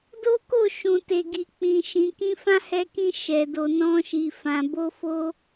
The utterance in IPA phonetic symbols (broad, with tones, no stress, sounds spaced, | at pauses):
d o˦ k o˦˨ ʃ ũ˨ t e˨ ɡ i˨ k͡p ĩ˨ ʃ ĩ˨ k ĩ˧ f ã˦ h ɛ˧ k ĩ˧ ʃ ɛ˨ d o˨ n ɔ̃˧ ʃ i˨ f ã˨ b o˧ f o˧